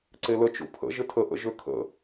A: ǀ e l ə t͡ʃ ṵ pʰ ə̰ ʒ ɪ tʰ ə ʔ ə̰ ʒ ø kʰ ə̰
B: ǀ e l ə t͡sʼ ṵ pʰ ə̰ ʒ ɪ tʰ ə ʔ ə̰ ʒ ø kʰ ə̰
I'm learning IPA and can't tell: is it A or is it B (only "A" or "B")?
A